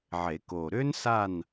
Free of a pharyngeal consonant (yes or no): no